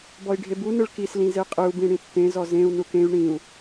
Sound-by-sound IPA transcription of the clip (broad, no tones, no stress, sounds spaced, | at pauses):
b ɔ i̯ ɖʱ e b u n ɯ ɭ k i s l ĩ z e qʼ ɯ u̯ b ĩ ɽ ĩ tː ẽ z ɔ z ẽ u̯ n u k ẽ y̯ ɳ ĩ u̯